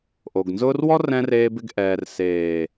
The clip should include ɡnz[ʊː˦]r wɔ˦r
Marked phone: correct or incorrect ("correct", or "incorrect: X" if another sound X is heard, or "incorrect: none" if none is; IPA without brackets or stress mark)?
correct